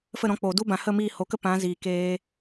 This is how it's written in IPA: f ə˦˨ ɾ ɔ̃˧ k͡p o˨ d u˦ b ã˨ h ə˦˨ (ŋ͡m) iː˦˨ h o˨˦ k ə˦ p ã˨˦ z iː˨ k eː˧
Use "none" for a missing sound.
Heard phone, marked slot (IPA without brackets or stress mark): m